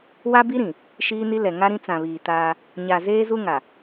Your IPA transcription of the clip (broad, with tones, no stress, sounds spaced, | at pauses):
w a˦ b i˦ ɾ ĩ˨ | ʃ iː˦ n i˦ l ɛ˨ ŋ a˦ ɾ ĩ˦ t͡s ã˨ β iː˨ t aː˦ | ɲ a˨ z eː˦ z u˦ ŋ a˨